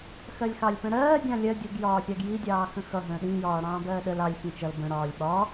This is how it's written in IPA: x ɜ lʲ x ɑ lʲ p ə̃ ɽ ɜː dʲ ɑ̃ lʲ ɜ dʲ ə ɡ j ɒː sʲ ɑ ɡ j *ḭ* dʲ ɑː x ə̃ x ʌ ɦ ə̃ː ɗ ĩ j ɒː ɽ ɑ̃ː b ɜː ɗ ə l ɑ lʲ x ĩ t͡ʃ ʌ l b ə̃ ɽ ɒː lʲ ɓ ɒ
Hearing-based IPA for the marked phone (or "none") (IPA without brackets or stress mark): i